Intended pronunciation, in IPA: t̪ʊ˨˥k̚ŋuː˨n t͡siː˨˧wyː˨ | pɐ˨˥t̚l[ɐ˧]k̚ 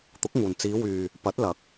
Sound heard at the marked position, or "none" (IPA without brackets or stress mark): ɐ˨˥